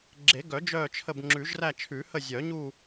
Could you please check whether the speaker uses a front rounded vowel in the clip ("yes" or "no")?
yes